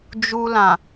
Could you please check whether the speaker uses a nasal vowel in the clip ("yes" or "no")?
yes